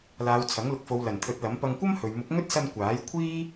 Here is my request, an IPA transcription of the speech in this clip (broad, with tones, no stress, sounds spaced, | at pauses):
l aː˨˧ w t͡sʰ ɐ˨˥ ŋ l ʊ˨ k̚ f o˨˧ w l ɐ˨˩ n t̪ʰ ɵ˨˥ t̚ l ɐ˨˥ m p ɐ˧ ŋ kʷ ɐ˥ m h ɵ˨ ɥ m ʊ˨˥ k̚ ŋ ɵ˥ t̚ s ɐ˧ n kʷ aː˨˥ j kʷʰ iː˥